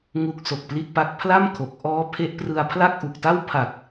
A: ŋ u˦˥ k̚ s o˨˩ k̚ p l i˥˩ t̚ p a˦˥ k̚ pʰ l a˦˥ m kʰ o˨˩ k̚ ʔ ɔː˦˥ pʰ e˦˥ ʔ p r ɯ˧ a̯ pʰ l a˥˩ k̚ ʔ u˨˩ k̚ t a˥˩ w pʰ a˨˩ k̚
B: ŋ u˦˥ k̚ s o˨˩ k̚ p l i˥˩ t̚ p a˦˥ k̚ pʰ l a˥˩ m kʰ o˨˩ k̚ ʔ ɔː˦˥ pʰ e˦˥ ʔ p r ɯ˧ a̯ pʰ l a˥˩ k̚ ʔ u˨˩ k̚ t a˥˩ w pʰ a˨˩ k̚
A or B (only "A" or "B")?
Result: B